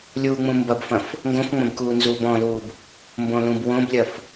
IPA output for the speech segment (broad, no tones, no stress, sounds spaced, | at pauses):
lʲ uː ŋ͡m ũ m b ɐ b f ɐ̃ f | ŋ ɡ õ f ŋ͡m ɐ̃ b k uː n z uː b ɔ̃ l uː b | m b õ l ũ b w õ b lʲ ɐ f